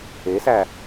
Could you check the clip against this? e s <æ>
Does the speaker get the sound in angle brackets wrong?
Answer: no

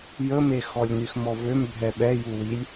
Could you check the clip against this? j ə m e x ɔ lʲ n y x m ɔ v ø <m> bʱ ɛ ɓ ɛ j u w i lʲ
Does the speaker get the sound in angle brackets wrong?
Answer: no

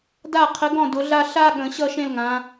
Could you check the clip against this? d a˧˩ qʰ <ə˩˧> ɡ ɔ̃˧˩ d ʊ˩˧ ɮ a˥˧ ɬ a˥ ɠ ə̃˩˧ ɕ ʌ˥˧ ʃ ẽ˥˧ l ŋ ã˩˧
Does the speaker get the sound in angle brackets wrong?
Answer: no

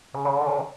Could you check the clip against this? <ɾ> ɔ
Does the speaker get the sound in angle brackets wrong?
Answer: yes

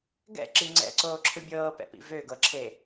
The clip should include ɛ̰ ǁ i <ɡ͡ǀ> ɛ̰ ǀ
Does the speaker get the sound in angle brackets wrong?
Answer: yes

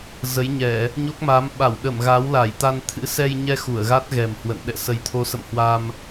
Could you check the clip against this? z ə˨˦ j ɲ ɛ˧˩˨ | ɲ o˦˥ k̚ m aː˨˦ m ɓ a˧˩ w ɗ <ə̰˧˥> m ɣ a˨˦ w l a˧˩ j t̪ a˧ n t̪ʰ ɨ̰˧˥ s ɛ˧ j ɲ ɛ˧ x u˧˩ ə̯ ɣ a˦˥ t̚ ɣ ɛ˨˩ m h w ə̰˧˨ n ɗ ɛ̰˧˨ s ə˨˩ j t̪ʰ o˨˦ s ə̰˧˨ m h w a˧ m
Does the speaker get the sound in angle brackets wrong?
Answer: yes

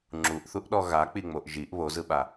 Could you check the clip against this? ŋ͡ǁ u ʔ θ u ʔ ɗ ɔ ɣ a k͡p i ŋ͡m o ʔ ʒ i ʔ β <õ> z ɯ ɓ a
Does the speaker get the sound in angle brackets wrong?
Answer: yes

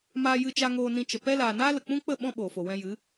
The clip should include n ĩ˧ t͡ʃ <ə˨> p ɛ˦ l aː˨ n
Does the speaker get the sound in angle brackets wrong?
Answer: no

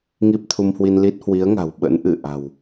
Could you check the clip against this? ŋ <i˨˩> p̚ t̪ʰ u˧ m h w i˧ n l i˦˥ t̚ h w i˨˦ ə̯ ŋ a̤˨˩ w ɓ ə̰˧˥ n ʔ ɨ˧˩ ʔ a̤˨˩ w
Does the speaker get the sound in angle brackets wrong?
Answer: yes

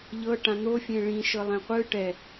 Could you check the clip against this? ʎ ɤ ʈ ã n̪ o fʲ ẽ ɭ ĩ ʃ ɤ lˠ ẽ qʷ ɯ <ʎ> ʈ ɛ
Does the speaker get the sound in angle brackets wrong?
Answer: yes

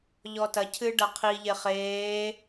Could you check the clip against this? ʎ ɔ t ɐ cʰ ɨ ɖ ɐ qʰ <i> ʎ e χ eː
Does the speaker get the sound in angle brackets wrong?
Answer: no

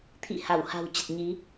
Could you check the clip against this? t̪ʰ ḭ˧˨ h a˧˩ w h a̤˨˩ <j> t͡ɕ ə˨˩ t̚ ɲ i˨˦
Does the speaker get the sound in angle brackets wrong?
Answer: yes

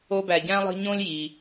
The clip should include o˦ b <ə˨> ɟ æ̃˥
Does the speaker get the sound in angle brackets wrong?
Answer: yes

